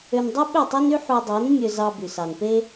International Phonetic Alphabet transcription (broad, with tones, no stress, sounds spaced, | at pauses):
ø˧ n dˤ y˦ ɓ ø˦˨ tˤ e˦ n y˦ ħ u˧ dˤ e˨˦ n mʲ ø˧ z ɑ˧ b y˨ s ɑ˨ n p e˦